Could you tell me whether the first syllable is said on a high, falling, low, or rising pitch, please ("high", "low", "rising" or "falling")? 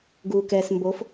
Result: low